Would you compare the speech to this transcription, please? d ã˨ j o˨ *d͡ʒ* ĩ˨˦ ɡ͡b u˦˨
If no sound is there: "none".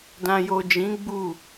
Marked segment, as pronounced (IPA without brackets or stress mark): d͡ʒ